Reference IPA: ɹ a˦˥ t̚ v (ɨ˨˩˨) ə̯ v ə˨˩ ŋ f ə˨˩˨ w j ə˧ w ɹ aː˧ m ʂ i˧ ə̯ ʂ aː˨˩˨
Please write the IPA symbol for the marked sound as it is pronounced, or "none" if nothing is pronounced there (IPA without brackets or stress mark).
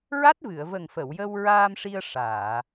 ɨ˨˩˨